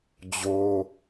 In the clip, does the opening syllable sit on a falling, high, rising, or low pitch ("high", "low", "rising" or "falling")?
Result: high